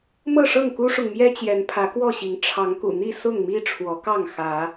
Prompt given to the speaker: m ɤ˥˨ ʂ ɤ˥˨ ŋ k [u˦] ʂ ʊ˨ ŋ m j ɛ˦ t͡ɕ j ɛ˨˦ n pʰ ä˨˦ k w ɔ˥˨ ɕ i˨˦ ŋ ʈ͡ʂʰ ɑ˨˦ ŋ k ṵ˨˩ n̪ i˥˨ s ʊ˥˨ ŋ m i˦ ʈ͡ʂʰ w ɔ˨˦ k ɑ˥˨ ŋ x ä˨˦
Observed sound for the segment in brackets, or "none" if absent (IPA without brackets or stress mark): u˦